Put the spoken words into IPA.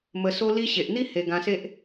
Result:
m ə˧ s o˧ l i˧ ɕ e˨ ʔ n̪ i˦ h e˧ ɡ ã˧ s e˦ ʔ

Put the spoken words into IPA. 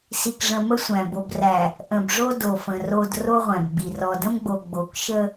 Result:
s i˨ k ʐ ə̃˨ m ə˦ sʷ æ̃˨ b o˨ b r æ˨ | ʔ ə̃˨ b ʐ o˦ d o˨ f ə̃˨ r o˨ d r o˦ ʁʷ æ̃˨ b ɡ͡b i˨ r ɔ˨ d ə̃˦ m ɡ͡b o˨ ɡ͡b o˨˦ k ʃ ə˦

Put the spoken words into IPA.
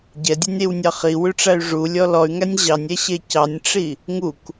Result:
ɟ ɛ dʲ ʉ nʲ ɾ i w nʲ ɑ χ i w ʉ ʈ͡ʂ æ y̯ ʐ u lʲ ɔ l ɔ y̯ ŋ æ nʲ ʑ ɑ nʲ ɛ ɕ e c ɑ nʲ ʈ͡ʂ i | ŋ u k

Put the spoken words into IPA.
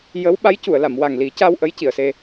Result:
j ə˧˥ w ɓ a˧˥ j c u˨˩˨ ə̯ l a˨˩˨ m w a˨˩ ŋ l i˨˩˦ c a˧ w ʔ ə˧˥ j c i˨˩˨ ə̯ s e˧

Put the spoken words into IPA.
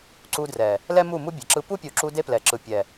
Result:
ǀ u˧ d r ɛ˨ | l ɛ˦ m u˦˨ m u˦ bʲ ɛ˨ ǁ ɯ˦ p u˦ pʲ u˨ ǁ u˧ d e˦ p l ɛ˨ ǁ ɯ˨ pʲ ɛ˨

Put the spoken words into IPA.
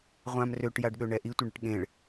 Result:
ʁʷ ã m r ø ʈ j a ɖ ɠ ø ɳ ɛ ʔ i tʷ ə ɳ ə ʈ ɠ ẽ ɭ

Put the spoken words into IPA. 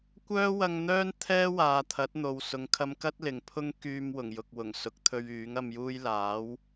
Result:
kʷ œː˥ w ɐ˧ ŋ n̪ œː˥ n t̪ʰ ɛː˥ w aː˨ t̪ʰ ɐ˨˥ t̚ n̪ o˨ w s ʊ˨ ŋ kʰ ɐ˧ m k ɐ˥ t̚ l ɪ˨ ŋ pʰ ʊ˥ ŋ k yː˧ m w ʊ˨˩ ŋ j ʊ˨ k̚ w ʊ˨˩ ŋ s ʊ˨˥ k̚ t̪ʰ ɵ˧ ɥ yː˨˥ ŋ ɐ˨ m j uː˧ j l aː˨˥ w

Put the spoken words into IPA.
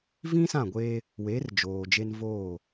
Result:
v ĩ˦ s ã˦˨ ɡʷ eː˦ | w eː˨˦ r d͡ʒ oː˨ d͡ʒ e˦ n v oː˦˨

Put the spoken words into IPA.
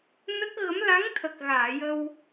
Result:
n ə˦˥ k̚ ɣ ə˧˥ m l a˧˥ ŋ t̪ʰ ə˨˩ k̚ ɣ aː˨˩˨ j ə˧ w

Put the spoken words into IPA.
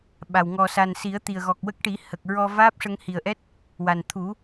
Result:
ɓ a˨˩ w ŋ ɔ˨˩ s a˨˩ n s i˨˩˦ ə̯ t̪ i˨˩ ə̯ ɣ ɔ˨˩ k̚ w ə˦˥ k̚ ʈ i˨˩˦ h ə˨˩ k̚ ɹ ɔ˧ v aː˦˥ p̚ ʂ ə˧ ŋ h i˨˩ ə̯ ʔ ɛ˦˥ t̚ | w a˨˩ n t̪ʰ u˨˩˦

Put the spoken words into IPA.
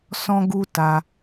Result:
s ɔ̃˦ ɡ u˦ t a˧

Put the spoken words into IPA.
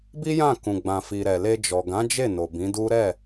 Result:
b i˦ j ã˦˨ k ũ˨ ɡ͡b ã˨ f i˨ ɾ ɛ˨ l e˧ d͡ʒ ɔ˨ ɡ ã˨˦ d͡ʒ e˦˨ n o˨ b ĩ˨˦ d u˦ ɾ ɛ˦˨

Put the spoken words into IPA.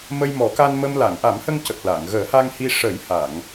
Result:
m ə˧ j m ɔ˨˩˦ k a˧ n m ə˧ m l a˨˩˨ ŋ ʔ a˨˩˦ m h ə˧ ŋ c ə˨˩ k̚ l a˨˩˨ ŋ ɣ əː˨˩˦ h a˧ ŋ h i˧ ʂ ə˨˩˦ j h a˨˩˨ ŋ

